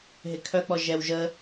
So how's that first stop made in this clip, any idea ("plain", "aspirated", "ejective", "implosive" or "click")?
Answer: aspirated